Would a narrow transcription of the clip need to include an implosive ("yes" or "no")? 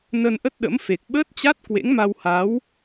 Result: yes